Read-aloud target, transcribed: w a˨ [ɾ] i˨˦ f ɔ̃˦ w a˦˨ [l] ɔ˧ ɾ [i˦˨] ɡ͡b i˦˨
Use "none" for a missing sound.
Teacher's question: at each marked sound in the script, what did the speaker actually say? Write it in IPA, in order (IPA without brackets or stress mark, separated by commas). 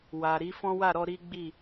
ɾ, ɾ, i˦